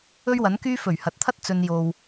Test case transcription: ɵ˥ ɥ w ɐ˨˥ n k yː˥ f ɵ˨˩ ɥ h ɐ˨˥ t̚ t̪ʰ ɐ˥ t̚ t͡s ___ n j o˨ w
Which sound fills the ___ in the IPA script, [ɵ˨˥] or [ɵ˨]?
ɵ˨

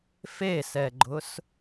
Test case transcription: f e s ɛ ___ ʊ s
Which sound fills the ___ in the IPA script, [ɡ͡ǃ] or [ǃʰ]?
ɡ͡ǃ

